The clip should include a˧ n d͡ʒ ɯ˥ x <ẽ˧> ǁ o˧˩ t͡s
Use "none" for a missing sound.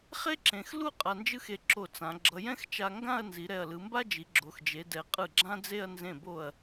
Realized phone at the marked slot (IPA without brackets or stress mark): e˧